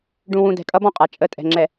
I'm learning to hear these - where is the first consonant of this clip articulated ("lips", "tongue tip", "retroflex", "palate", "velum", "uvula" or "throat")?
retroflex